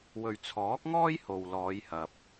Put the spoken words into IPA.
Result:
w ɵ˨ ɥ t͡sʰ ɔː˨˥ k̚ ŋ ɔː˥ j h o˨ w l ɔː˨˧ j h ɐ˨ p̚

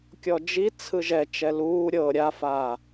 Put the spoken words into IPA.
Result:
kʲ ɔ d͡ʒ i t͡sʰ ɯ ʒ ɛ t͡ʃ ɛ l uː ɾʲ ɤ ɾʲ a f aː

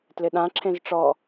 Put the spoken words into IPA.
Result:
t l ɪ ɗ ã ǁʰ ẽ z ʈ͡ʂ ɔ

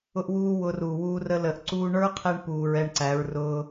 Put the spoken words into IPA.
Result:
ʊ˦ ʔ w uː˦ w ʊ˧ r u˨ w uː˧ r ə˧ l ə˨ ʔ ǀ uː˧ ɳ ə˞˦ qʰ ɛ˧ ɳ p uː˨ ɹ ɛ˧ ɳ ǀ æ˨˦ ɹ r ʊː˧

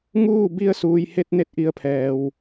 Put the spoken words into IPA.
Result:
ŋ uː˥˨ b i˧ ə̯ s uː˩ j h e˧ t̚ n e˧˥ t̚ ʔ i˧˩ ə̯ pʰ ɛː˩ w

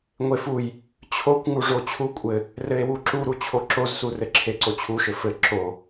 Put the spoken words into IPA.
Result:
ŋʷ e f u j | t͡ɕʰ o kʷ ŋ u ʐ o t͡ɕʰ u kʷʼ ɘ | r ɘ e̯ w u ǁ u ɾ u t͡ɕʰ o ǁ o z s u r ɘ ǁʰ e ǀ o t͡ɕʰ u ʃ ɘ f ɘ ǁ o

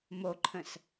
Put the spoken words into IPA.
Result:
m o ǃʰ ə̃ s

